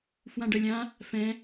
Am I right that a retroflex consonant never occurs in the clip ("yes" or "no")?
no